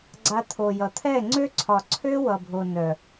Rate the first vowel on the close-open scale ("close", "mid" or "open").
open